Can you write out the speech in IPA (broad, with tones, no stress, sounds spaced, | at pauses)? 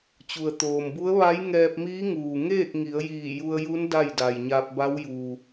t͡ɕ u˩ ə̯ t̪ oː˩ m b u˧˥ ə̯ ʋ a˧˥ j ŋ ɛː˧ p̚ m iː˧˥ ŋ uː˩ ŋ eː˥˨ k̚ ŋ i˩˧ ə̯ j iː˧˩ j u˧ ə̯ j u˧˥ n d a˥˨ j d a˩ j ɲ a˧ p̚ b a˧˥ w j uː˩